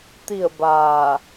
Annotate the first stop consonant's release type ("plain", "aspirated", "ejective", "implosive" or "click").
plain